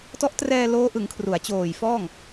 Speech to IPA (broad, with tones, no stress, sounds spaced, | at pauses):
t ɔ˦˥ ʔ t r ɛː˧ l oː˦˥ ʔ ɯ˩˦ ŋ kʰ r u˩˦ a̯ t͡ɕ oː˨˩ j f ɔː˥˩ ŋ